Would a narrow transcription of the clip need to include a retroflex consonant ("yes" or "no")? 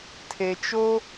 no